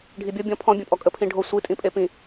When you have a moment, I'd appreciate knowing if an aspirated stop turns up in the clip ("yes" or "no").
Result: yes